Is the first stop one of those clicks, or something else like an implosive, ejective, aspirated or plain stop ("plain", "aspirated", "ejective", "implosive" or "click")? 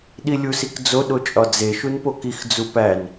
implosive